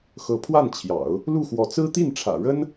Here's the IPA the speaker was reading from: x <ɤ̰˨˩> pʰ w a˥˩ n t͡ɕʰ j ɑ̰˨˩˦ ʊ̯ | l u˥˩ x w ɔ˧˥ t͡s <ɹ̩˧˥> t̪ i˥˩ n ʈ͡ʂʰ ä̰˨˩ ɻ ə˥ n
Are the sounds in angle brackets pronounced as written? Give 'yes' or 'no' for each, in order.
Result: no, no

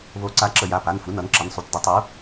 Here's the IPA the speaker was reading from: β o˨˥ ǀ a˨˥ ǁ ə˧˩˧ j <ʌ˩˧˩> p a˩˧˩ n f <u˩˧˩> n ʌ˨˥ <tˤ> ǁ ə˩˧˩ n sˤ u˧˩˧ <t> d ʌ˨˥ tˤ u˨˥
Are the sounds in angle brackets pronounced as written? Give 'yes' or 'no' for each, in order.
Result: no, yes, no, yes

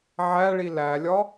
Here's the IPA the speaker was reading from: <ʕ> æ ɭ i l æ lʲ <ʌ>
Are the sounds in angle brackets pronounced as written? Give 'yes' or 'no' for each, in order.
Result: yes, no

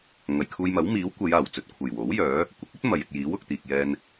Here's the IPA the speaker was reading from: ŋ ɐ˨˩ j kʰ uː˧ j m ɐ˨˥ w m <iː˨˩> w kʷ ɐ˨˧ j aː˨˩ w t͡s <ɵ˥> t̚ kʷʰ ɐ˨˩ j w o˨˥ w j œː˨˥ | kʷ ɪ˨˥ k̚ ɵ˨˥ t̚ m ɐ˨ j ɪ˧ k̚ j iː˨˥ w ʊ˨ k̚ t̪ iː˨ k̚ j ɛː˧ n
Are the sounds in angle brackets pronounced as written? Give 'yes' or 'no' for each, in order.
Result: no, no

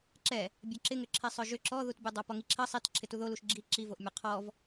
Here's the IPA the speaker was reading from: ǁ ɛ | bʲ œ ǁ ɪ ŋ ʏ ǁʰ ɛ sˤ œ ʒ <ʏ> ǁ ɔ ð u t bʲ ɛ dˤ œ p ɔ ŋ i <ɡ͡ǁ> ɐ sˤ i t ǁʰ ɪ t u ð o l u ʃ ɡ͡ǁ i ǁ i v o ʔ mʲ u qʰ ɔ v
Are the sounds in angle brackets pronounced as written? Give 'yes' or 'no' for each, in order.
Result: yes, no

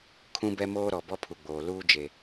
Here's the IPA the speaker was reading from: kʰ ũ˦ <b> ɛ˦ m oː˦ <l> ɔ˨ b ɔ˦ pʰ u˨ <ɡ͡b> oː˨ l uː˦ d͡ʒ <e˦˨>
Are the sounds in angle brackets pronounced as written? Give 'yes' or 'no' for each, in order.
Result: yes, no, yes, no

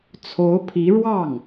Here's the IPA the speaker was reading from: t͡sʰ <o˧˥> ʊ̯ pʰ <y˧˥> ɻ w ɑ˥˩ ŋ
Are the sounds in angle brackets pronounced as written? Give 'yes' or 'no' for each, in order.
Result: yes, no

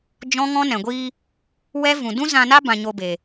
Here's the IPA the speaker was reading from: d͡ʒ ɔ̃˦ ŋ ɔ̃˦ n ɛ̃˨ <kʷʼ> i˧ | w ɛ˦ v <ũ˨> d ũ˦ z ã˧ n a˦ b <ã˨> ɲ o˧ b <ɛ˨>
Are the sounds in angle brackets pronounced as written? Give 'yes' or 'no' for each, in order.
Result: no, yes, no, no

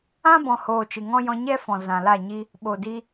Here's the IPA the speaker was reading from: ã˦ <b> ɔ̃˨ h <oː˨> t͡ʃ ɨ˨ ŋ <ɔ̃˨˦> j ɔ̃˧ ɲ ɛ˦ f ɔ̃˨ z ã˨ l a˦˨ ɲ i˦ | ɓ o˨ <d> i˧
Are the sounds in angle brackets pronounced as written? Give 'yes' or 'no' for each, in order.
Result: yes, yes, no, yes

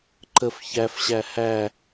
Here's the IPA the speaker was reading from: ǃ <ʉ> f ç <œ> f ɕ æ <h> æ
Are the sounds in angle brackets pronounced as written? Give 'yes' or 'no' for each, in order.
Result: no, no, yes

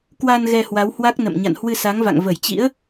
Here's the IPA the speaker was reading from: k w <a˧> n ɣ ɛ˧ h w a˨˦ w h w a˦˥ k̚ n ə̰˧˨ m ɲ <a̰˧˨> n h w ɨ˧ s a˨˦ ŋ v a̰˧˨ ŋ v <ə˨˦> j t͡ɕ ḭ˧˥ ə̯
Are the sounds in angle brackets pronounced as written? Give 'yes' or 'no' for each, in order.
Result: yes, yes, no

